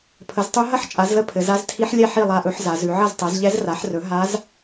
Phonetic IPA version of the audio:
pʰ ə˩˥ z tˤ ʉ˧˥ ɦ ɐ˥˧ ħ t͡ʃʼ a˩˥ z l ə˧˥ pʰ ɘ˩˧ z a˧˥ z tʰ i˧˥ ħ lʲ ɛ˥˩ ħ i˥˩ lˠ a˧˥ ʔ ɵ˩˥ ħ z a˩˧ z ʉ˩˧ ʕ ɐ˥˩ z tˤ ɛ˩˥ z ʎ ɛ˧˥ z r a˩˥ ħ r ɵ˩˥ ɦ a˧˥ z

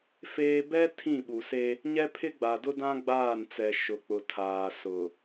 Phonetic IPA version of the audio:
f eː˦ b ɛ˦ tʰ ĩ˦˨ ɓ u˨ s e˦ | ɲ ɛ˦ pʰ ɪ˦ ɡ͡b a˨ d ʊ˦ d ã˦ ɡ͡b aː˦˨ n t͡s ɛ˨ ʃ ʊ˨ k͡p ʊ˨ tʰ aː˨ s ʊ˨

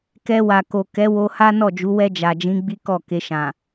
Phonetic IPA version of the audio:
k ɛ˧ w a˨ k o˨ k ɛ˨˦ w o˧ h a˦ n ɔ˦˨ d͡ʒ u˨˦ w ɛ˧ d͡ʒ a˨ d͡ʒ ĩ˨˦ ɡ͡b i˦ k ɔ˦˨ k e˧ ʃ ã˨

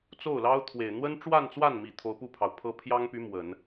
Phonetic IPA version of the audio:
t͡s o˥˩ ʊ̯ l ɑ˥ ʊ̯ t̪ʰ w e˨˩ ɪ̯ n̪ w ə˥ n ʈ͡ʂ w a˥˧ n t͡s w a˥˩ n m i˨˩ t̪ʰ o˧˥ ʊ̯ p u˥˩ pʰ ɑ˩ ʊ̯ pʰ ɤ˥ pʰ j ɑ˥ ŋ p y˧˥ m w ə˨˩˦ n

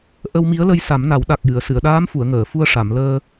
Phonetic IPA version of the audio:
ʔ ə˧ w m i˧˥ ə̯ l ə˧ j s a˨˩˦ m n a˨˩˦ w ɗ a˨˩ k̚ j ɨ˨˩˨ ə̯ s ɨ˨˩˨ ə̯ ɗ aː˧˥ m f u˨˩˨ ə̯ ŋ əː˨˩˨ f u˧ ə̯ ʂ a˨˩˨ m l əː˧

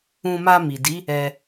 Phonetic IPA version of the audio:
ũ˧ m a˧ m i˨ d i˨˦ | ɛ˧

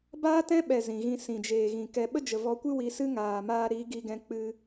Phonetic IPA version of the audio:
b aː˦ t ɛ̃˦ ɓ ɛ˨ z ĩ˨ ɣ ĩ˧ s ĩ˨ d͡ʒ eː˨ ɣ ĩ˨ k ɛ˧ ɓ ə˦ d͡ʒ ə˨ v ɔ˧ kʷ ɨ˦ w i˨˦ s ɨ˦ ŋ aː˨ m aː˧ ɾ i˨˦ ɡ i˧ ɡ ɛ̃˧ k͡p ɨ˧

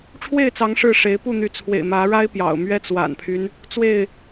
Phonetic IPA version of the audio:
ʈ͡ʂʰ w e˥˨ ɪ̯ t͡s ɑ˨˦ ŋ ʂ ɻ̩˥˨ ʂ e˨˦ ɪ̯ p u˥˨ n̪ y˨˦ t͡sʰ w ḛ˨˩ ɪ̯ m ä˨˦ ɻ a˦ ɪ̯ p j ɑ̰˨˩ ʊ̯ m ɥ ɛ˦ t͡s w a̰˨˩ n pʰ y˦ n | t͡s w e˥˨ ɪ̯

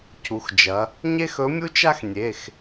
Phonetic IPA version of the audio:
cʰ u˩˧ x d͡ʒ ɐ˩˧ | ɲ e˥ x ɵ˧˥ mʲ u˥ t͡ʃ a˥ x nʲ e˩˧˩ x

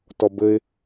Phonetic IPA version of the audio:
t ɔ b ɘ ɪ̯

